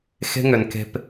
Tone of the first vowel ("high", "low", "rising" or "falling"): high